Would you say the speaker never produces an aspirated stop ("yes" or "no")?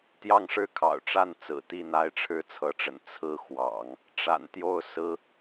no